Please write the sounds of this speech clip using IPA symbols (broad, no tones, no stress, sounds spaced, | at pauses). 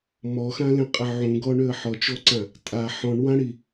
m ɔ x ã l ẽ qʼ ɪ ʕ ũ ɡ ɔ ɳ ø ə̯ ħ ɔ t͡ʃ ɔ ǀ ã | tʼ a ħ ɔ̃ ɳ w ã ɽ i